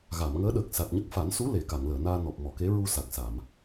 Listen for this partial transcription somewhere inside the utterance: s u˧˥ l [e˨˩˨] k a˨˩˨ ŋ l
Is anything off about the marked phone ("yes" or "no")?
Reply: no